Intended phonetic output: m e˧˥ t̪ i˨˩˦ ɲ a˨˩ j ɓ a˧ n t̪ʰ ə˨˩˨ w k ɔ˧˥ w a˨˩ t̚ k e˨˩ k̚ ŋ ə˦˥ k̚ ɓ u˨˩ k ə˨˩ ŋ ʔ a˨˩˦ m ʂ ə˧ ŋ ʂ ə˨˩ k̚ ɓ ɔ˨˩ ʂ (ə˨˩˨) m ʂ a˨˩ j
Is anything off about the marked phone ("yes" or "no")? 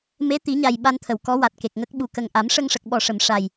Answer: no